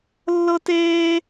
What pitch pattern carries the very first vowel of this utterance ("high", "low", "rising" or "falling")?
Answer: high